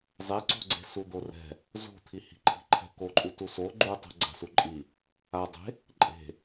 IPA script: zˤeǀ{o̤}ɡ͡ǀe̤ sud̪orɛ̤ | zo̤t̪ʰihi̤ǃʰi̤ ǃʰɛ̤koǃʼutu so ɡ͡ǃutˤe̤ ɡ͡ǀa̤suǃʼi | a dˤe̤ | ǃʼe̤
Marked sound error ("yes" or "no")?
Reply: no